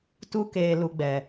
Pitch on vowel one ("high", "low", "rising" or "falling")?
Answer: high